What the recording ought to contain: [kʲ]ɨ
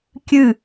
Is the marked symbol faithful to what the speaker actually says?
yes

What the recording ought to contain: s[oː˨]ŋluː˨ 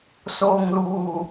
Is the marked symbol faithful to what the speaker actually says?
yes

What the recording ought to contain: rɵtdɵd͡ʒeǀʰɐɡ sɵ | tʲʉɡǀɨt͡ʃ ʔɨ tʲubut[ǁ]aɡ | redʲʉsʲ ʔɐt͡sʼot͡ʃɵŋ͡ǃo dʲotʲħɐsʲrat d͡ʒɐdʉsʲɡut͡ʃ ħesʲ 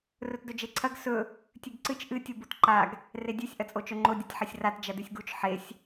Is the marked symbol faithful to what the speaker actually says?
no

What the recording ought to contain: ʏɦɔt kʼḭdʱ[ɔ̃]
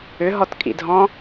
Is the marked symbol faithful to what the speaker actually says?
yes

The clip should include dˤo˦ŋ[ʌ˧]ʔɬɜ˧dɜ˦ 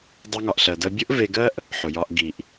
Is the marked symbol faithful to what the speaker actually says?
no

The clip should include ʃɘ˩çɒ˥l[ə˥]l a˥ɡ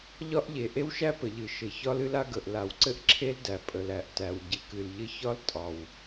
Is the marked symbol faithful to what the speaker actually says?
no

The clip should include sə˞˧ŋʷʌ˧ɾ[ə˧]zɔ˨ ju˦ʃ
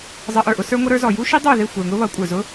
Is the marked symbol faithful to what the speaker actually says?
no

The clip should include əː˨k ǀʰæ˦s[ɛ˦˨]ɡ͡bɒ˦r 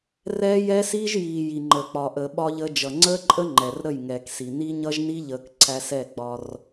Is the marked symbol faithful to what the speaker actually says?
yes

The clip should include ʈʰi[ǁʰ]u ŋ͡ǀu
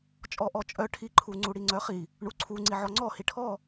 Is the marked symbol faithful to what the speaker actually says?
no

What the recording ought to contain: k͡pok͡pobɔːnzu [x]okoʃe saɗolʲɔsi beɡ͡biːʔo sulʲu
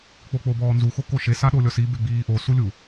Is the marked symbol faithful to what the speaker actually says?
yes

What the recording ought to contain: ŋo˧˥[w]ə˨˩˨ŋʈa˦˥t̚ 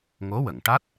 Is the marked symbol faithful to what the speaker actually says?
yes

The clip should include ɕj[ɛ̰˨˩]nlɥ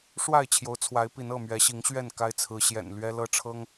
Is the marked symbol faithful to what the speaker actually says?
yes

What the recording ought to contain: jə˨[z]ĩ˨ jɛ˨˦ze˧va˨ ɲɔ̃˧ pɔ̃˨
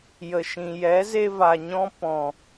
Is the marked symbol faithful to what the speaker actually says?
no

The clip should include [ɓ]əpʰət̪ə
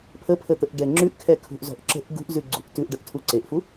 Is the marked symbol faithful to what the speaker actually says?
no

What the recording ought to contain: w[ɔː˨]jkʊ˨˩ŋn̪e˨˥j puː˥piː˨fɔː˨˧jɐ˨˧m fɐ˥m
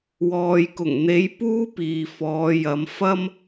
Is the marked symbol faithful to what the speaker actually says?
yes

